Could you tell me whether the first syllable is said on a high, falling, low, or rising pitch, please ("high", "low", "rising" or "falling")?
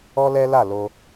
high